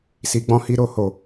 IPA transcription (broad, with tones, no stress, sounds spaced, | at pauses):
s i˧ ɡ͡b ɔ̃˦ h i˦ ɾ o˦˨ h o˨